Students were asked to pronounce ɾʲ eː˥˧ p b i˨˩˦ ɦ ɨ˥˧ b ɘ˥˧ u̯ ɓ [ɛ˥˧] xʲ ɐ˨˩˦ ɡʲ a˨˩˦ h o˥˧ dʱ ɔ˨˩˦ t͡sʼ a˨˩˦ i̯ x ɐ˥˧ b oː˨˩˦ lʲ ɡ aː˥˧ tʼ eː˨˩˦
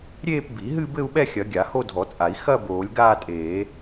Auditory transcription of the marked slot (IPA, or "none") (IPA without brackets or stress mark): ɛ˥˧